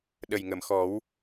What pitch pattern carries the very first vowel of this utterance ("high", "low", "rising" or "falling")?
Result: low